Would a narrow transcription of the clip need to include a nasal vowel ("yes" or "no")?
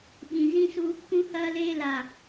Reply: yes